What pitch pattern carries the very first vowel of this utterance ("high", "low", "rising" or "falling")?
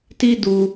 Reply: high